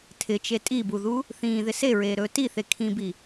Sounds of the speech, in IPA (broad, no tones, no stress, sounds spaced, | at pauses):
tʰ ɪ t͡ʃ e tʼ i b u ð u | θ ĩː ð ɪ s e ɹ eː ɾ ɵː t i θ e kʰ ĩ b i